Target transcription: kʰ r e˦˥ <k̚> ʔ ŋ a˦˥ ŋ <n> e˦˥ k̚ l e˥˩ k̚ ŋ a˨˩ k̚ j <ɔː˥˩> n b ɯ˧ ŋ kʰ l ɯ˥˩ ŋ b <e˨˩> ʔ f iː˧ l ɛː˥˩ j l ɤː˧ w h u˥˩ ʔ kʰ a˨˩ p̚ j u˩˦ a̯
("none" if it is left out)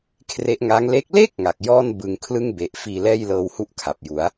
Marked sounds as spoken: none, l, ɔː˥˩, e˨˩

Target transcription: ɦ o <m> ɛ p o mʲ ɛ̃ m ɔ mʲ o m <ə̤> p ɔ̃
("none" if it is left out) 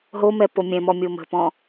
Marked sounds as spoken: m, ə̤

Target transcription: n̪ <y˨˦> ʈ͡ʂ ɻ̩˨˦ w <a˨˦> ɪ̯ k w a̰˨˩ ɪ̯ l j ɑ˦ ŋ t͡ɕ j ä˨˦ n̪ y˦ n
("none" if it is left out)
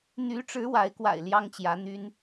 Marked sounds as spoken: y˨˦, a˨˦

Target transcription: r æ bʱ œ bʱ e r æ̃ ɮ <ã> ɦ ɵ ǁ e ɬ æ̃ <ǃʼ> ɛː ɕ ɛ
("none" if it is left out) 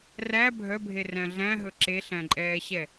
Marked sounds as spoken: æ̃, ǃʼ

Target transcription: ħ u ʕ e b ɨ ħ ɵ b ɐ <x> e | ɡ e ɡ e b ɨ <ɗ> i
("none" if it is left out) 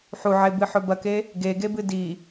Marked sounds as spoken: k, d

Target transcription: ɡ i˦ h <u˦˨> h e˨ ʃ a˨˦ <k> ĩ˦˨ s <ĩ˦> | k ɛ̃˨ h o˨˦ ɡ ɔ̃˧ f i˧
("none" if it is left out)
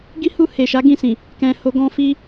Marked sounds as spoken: u˦˨, ɡ, ĩ˨

